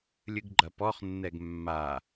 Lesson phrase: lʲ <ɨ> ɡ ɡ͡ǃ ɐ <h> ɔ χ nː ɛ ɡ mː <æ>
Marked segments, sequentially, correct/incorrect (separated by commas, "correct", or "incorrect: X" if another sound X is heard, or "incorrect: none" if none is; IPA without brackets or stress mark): correct, incorrect: p, incorrect: a